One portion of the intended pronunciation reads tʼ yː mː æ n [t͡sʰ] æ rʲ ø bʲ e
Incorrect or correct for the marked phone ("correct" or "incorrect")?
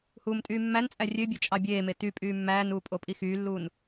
incorrect